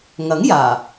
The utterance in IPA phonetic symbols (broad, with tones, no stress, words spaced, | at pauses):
ŋɐ˨˥ŋjaː˨˩